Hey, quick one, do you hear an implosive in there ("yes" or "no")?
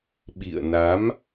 yes